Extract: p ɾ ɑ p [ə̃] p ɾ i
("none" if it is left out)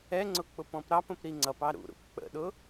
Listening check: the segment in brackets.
ə̃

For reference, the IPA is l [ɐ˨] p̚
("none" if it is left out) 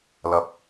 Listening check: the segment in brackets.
ɐ˨˥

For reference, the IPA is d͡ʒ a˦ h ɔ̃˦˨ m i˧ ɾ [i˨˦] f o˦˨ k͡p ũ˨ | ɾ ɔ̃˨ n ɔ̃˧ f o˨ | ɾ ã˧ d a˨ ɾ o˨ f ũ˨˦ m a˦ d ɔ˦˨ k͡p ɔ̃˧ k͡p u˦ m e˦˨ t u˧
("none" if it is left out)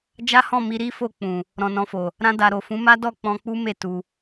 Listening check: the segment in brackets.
i˦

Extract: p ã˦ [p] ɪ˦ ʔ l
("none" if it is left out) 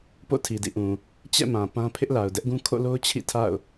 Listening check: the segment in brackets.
pʰ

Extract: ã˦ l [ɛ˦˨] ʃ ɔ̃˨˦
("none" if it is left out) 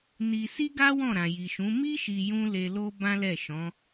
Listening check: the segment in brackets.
ɛ˦˨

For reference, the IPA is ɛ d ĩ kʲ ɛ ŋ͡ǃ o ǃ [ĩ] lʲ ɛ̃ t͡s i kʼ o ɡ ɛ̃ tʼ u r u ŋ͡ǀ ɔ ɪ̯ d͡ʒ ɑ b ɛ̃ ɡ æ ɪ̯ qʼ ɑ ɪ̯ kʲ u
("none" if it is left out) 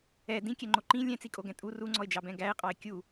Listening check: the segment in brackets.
ĩ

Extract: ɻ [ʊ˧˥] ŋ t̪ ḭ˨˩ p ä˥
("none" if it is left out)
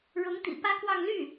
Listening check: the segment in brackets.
ʊ˧˥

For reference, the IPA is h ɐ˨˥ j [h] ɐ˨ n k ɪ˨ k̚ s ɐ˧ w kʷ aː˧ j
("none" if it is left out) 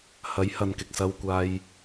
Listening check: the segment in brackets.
h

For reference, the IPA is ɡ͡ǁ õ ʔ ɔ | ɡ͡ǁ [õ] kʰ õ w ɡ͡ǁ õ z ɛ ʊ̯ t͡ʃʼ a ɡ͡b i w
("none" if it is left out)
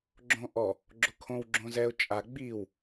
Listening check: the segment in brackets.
o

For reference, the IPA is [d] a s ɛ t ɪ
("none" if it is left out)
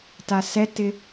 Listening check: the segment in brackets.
t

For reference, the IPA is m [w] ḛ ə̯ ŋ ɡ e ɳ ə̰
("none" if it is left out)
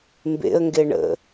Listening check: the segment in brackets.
b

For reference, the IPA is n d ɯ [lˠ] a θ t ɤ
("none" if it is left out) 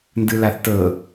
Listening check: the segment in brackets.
l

